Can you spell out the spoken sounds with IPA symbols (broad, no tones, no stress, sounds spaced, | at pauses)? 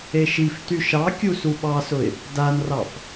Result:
e ʃ i f t y ʃ ɑ kʲ u s u ɓ ɑ s ʊ ɪ̯ | d a n r ɑ f